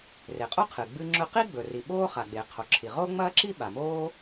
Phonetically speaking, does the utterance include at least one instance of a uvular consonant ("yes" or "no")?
yes